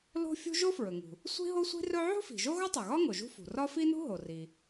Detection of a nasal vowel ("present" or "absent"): absent